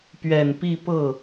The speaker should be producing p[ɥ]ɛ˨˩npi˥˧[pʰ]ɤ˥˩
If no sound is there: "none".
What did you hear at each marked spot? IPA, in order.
ɥ, p

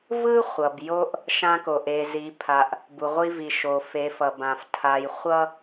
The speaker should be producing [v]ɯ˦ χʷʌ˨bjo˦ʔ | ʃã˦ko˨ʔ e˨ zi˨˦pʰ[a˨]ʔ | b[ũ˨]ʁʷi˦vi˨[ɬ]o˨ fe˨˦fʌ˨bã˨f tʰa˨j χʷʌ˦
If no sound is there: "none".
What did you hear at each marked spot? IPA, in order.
v, a˨, u˨, ʃ

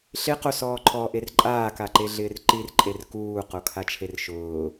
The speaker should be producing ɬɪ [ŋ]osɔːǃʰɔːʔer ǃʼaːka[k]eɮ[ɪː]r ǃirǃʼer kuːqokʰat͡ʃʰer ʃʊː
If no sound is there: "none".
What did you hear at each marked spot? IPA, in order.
q, ǃ, ɪː

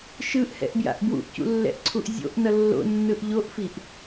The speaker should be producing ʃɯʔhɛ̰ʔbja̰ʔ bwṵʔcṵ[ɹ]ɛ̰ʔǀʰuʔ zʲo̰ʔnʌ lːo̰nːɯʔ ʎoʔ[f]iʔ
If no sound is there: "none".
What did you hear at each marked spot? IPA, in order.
lː, f

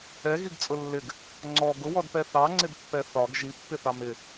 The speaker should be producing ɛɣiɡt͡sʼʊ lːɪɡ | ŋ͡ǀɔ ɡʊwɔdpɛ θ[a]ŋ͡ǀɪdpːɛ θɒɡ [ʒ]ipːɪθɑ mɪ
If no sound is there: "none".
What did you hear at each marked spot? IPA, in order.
ɑ, ʒ

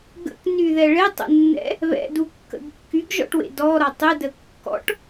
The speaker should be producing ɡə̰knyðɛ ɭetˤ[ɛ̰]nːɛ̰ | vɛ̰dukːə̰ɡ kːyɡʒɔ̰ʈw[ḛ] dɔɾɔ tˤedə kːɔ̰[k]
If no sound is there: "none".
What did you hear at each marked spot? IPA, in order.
ɛ̰, ḛ, ʈ

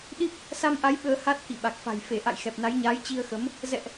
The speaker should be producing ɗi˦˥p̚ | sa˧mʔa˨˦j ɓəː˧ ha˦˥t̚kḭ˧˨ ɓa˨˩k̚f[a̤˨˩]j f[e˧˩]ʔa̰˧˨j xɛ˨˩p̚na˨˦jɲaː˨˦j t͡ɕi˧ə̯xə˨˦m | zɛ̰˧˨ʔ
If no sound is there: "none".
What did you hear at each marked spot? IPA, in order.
a̤˨˩, e˧˩

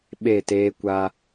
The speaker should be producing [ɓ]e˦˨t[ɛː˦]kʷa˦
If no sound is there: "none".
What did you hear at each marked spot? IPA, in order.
ɓ, eː˦

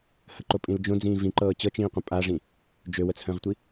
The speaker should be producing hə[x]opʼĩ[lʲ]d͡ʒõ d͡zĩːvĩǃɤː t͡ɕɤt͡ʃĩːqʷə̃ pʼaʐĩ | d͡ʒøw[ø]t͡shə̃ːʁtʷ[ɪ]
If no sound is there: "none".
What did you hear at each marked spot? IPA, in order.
ǃ, l, ə, i

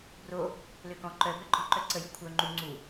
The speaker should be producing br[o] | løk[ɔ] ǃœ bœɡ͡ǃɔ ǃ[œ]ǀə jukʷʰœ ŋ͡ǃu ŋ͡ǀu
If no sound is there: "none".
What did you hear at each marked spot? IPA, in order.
o, ɔ̃, œ

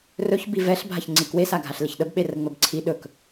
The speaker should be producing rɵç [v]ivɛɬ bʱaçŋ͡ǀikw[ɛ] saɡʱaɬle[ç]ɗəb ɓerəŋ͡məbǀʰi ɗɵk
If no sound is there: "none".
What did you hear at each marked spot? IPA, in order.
b, e, ç

